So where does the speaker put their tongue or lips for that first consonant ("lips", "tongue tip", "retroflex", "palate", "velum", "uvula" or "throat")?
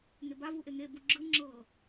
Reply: velum